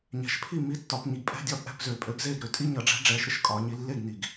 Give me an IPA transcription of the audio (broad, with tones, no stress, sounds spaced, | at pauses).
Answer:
ɲ ɛ̤˨˩ ʃ pʰ i˥˩ m i˨˥ tː ɒ˩˧ p ɲ i˩˧ ɡ pʼ ɛ̤˧˥˧ dʲ ɒː˥˩ p ʔ ɛ̤˥˩ p z ø˨˩ pʼ ø˨˥ ɡ z eː˥˩ ɡ ɾ ø˨˥ tʼ i˧˥˧ ɲ ʌ˨˩ ɖ͡ʐ ɛ̤˨˥ ɖ͡ʐ ɛː˩˧ ʃ ɾ ɪ˩˧ ʃ kʼ ɒː˩˧ ɲ i˩˧ lː e˥˩ ɡ n i˨˩ ɡ